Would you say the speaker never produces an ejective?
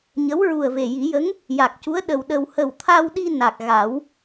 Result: yes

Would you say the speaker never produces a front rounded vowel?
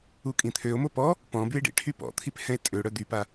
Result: no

